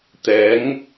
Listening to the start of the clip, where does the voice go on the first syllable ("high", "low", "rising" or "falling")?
rising